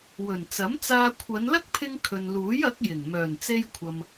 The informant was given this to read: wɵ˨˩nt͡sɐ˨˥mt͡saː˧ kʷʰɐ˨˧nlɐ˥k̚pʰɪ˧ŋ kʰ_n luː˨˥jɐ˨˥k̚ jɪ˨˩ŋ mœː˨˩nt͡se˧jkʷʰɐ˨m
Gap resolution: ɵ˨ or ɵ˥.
ɵ˨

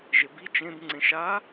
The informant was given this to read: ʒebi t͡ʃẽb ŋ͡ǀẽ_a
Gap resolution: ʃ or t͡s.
ʃ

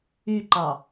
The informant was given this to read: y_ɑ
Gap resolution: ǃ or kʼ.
ǃ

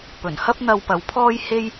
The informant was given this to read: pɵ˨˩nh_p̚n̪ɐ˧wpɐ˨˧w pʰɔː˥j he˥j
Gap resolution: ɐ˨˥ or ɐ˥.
ɐ˥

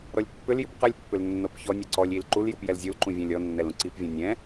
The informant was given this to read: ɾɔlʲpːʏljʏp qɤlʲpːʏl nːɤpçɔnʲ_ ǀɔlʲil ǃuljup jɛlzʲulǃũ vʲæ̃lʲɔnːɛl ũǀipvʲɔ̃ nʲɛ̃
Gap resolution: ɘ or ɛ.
ɛ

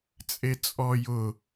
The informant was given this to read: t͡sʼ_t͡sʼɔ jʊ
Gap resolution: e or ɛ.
e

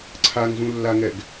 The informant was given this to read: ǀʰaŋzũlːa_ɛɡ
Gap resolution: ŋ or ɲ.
ŋ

